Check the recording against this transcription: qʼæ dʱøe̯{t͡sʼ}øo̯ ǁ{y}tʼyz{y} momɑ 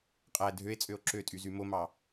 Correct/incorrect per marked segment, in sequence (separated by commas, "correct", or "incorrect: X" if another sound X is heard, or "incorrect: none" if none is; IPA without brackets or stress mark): correct, incorrect: ø, correct